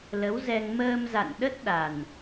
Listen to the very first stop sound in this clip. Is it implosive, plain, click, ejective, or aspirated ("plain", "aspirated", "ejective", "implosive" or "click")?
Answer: implosive